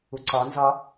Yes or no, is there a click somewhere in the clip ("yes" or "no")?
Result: yes